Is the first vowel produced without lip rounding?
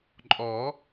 no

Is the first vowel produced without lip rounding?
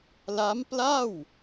yes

